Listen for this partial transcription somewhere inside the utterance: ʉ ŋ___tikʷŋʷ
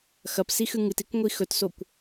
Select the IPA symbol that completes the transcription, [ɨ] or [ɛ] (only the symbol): ɨ